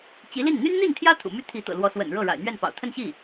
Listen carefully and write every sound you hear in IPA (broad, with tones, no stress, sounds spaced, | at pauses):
t͡ɕ i˧˥ l i˥˩ n n̪ y˥ n n̪ i˥˩ n t̪ʰ j ä˥ t̪ʰ ṵ˨˩ m y˥˩ t̪ʰ i˧˥ t̪ ɤ̰˨˩ l w ɔ˧˥ s w ə̰˨˩ n ɻ ɤ˥˩ ɻ a̰˨˩ ɪ̯ n̪ ɥ ɛ˥˩ n p ɑ̰˨˩ ʊ̯ t̪ʰ ə˥˧ n ɕ i˥˩